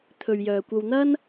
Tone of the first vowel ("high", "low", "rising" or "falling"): low